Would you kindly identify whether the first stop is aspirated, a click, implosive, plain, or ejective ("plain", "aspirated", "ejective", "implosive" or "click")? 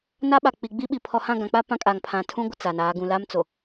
implosive